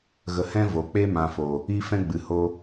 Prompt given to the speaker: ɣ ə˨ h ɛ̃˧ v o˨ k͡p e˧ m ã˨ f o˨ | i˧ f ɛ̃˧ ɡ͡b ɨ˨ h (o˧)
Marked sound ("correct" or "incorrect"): correct